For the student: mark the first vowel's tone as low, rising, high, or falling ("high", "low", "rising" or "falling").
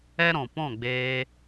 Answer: high